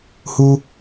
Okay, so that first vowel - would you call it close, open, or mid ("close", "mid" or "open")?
close